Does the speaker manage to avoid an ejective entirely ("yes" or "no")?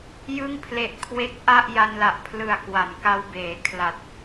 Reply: yes